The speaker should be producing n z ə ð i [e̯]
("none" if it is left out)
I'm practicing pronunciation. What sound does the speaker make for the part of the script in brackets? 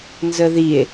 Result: e̯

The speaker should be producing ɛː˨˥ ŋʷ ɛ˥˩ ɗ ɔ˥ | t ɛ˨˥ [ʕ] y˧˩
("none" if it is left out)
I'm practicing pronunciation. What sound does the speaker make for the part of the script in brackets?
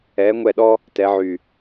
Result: ʕ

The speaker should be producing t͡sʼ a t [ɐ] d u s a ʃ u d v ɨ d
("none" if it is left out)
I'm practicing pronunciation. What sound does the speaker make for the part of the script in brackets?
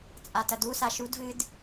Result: ɐ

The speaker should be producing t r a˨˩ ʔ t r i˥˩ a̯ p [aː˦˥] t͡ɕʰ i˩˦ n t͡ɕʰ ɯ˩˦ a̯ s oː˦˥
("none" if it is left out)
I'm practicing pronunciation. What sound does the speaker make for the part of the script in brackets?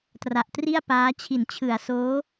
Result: aː˦˥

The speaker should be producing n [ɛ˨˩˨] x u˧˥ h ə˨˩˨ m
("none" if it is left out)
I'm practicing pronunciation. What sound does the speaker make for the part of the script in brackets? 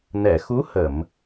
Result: ɛ˨˩˨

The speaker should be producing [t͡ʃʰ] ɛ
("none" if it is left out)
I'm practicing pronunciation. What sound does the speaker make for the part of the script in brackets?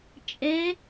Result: t͡ʃʼ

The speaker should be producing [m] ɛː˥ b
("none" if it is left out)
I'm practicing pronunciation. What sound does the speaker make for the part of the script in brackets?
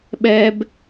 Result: ɓ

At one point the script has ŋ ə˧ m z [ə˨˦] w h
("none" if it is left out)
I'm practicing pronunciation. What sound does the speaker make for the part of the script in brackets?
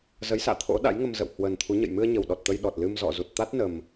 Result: ə̰˧˨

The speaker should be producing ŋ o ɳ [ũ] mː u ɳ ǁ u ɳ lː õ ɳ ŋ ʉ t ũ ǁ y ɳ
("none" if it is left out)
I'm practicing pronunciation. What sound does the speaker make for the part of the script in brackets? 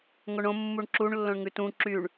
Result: õ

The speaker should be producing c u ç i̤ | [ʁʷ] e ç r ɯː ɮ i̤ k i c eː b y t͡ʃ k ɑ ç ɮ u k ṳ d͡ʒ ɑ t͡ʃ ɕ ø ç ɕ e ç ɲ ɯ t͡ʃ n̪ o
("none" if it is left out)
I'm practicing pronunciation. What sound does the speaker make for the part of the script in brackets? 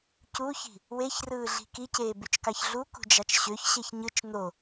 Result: w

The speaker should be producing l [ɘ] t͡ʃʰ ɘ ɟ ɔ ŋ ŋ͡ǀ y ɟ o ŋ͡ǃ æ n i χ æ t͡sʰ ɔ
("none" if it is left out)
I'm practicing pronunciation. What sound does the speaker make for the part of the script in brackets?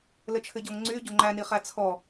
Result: ɘ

